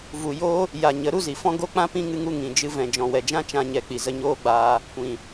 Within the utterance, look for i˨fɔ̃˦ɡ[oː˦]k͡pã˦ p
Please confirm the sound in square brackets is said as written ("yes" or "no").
no